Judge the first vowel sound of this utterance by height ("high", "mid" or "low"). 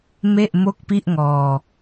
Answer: mid